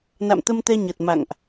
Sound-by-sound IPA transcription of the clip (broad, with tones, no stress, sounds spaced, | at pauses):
n a̰˧˨ m t̪ ə˧ m t̪ ɛ˧ ɲ ə˨˩ t̚ m a̰˧˨ ŋ ʔ